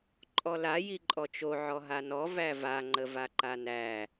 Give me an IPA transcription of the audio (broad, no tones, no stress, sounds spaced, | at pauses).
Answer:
ǃʼ ɔ l a j i ǃʼ ɔ t͡ʃ o ʕ ɔ ɦ a n ɔ v æ v a ŋ͡ǃ ə v a ǃ a n æ